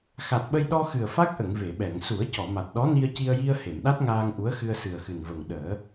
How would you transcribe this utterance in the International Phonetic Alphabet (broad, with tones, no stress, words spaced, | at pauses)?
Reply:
xa˨˩t̚ɓə˧j ɗɔ˧xɨ˨˩ə̯ fa˦˥k̚ʔə˨˩˨ŋ ve˨˩˨ɓɛ˨˩˨ŋ su˨˩˦ə̯cɔ˨˩˨ma˨˩t̚ɗɔ˧˥ ni˧ə̯ci˧ə̯ji˧ə̯ he˨˩˨mɗa˦˥t̚ ŋaː˧ŋʔu˧˥ə̯ xɨ˧ə̯sɨ˨˩ə̯xɨ˨˩n və˨˩ŋɗəː˨˩˦